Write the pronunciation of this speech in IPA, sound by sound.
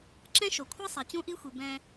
ǁ ɛ̃˦ ʃ o˨ kʷʰ ɛ˦ sˤ ɛ˨ t͡ɕ ũ˦ ʔ i˦ xʷ i˨ b ɛ̃˦

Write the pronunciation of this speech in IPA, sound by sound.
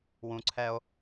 w ũ˨ ǀʰ ɛ˦ o̯

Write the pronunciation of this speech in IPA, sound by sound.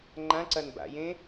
ŋ͡ǃ ã ǀ ɐ n b a̰ j ẽ

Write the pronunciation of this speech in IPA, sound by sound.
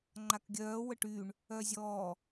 ŋ͡ǃ a k ɡʲ œː w ə ʈ y ɳ | œː zʲ ɔː

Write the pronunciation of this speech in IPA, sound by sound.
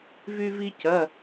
v y˧ v i˧ c ɐ˩˧˩

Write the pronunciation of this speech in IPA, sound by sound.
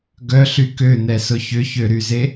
ɡ œ ɬ y k ø n̪ ɛ s ʊ ç ʏ ç ø ɾ y z e

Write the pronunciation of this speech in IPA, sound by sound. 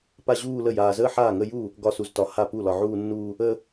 p a˥˧ ʑ uː˥˧ l ə˥˩ j aː˨ z əː˥˧ ħ aː˥˩ ŋ ə˥˧ j uː˥˩ | ɡ ɒ˥˩ s u˨ z t ɒ˨ h a˥˩ p u˥˩ l ɒ˨ ʕ uː˥˧ nː uː˥˧ | əː˥˧

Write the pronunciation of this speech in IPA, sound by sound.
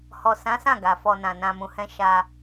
h ɔ˨ s ã˨˦ s ã˦˨ ɡ a˨ f ɔ˧ n ã˨ n ã˧ m ũ˧ h ɛ̃˦ ʃ a˧

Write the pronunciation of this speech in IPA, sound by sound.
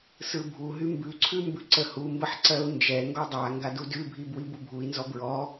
s ɯ bʱ u ɦ y m b ʉ ǀʰ ʉ m b ʉ ǀ ə h u m b ə ħ ǀ ɜ u̯ n d͡ʒ ɛ ŋ ɡ ɔ dˤ a ŋ ɡ a d u d ʉ bʱ i b w i b u bʱ u i̯ n z ɔ b ɹ ɔ

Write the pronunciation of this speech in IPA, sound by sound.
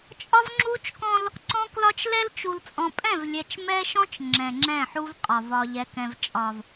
t͡ʃʼ ɒ˦ v ŋ͡ǁ u˦ t͡ʃ k ɔ̃˦ l | ǀ ɔ̃˦ k l ɒ˦ t͡ʃ l ɛ˦ l t͡ʃ u˨ l t͡sʼ ɔ̃˨ pʼ ɛ̃˦˨ v lʲ ɛ˨ t͡ʃ m ɛ˦ ʃ ɔ̃˦ t͡ʃ ŋ͡ǁ ɛ̃˨ ŋ͡ǁ ɛ̃˦˨ ħ u˦ v qʼ ɒ˨ v ɒ˨ ʎ ɛ˨ k ɛ̃˨ v t͡ʃʼ ɒ˨ v

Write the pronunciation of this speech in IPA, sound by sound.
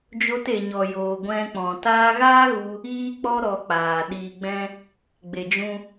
d͡ʒ o˧ t e˨ ɲ ɔ˨ j oː˨ ɡʷ ɛ̃˧ k͡p ɔ̃˨ t aː˧ ɣ aː˦ ɣ u˧ | iː˦ k͡p ɔ˦ ɾ ɔ˧ k͡p aː˨ ɗ iː˧ ɡ͡b ɛ̃˦ | ɡ͡b e˨ d͡ʒ ũ˧

